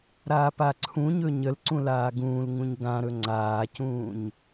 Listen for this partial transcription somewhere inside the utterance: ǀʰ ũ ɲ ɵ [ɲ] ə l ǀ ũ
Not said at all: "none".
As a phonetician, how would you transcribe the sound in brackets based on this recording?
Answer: ɲ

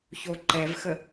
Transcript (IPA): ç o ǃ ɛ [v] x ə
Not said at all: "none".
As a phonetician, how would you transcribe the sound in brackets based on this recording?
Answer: v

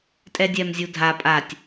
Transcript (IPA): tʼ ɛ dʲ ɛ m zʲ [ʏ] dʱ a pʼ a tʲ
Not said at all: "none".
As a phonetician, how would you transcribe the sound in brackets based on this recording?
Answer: u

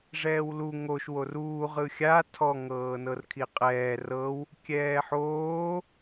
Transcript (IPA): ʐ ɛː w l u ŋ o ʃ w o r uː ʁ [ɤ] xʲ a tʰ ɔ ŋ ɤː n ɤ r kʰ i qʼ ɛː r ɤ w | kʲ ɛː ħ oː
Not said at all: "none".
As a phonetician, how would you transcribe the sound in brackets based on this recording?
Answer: ɯ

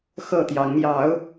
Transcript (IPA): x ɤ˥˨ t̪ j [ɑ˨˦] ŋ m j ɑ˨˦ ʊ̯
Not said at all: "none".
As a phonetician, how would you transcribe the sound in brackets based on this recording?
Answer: ɑ˨˦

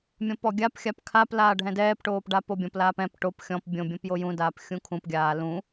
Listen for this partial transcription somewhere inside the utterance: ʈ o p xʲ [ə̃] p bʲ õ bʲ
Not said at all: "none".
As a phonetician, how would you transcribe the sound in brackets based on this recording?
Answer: ɔ̃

